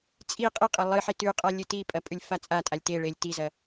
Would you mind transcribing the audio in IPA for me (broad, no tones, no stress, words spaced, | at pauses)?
t͡sʼi qʼiqʼɐ lˠɨħi tʉqʼa lʲɨtipʼɐ pʼʉlʲfat͡sʼatʼalʲ teɭelʲ tizɐ